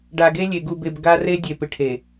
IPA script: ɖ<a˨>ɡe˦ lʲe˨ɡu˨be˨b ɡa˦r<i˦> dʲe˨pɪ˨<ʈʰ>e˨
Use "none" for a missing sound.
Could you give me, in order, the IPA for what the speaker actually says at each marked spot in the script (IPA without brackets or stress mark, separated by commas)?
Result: a˨, e˦, ʈʰ